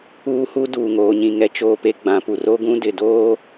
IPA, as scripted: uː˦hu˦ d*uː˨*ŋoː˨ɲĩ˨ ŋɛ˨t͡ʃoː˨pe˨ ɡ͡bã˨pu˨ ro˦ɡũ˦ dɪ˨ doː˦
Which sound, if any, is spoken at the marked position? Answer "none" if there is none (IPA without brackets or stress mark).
uː˨